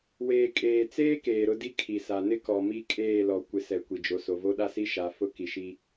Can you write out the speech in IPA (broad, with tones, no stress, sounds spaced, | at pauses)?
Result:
w eː˨ kʼ eː˨ t͡s eː˦ k eː˨ ɾ ʊ˦ d i˦ kʰ i˨ s a˨ n ɪ˦ k ɔ˨ m i˦˨ kʼ eː˦˨ l ɔ˨ kʷ ɪ˨ s ɛ˨ kʷ i˨ d͡ʒ o˨ s o˨ v o˦ ɗ a˦ s i˦ ʃ a˨˦ f ʊ˦ k i˨ ʃ i˦